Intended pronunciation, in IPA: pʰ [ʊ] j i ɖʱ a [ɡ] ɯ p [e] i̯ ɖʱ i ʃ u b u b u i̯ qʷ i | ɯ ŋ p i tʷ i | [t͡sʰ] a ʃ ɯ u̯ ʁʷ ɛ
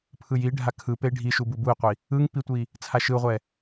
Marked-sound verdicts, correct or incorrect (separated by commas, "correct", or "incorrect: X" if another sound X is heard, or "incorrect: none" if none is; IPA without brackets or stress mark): incorrect: ɯ, incorrect: kʰ, correct, correct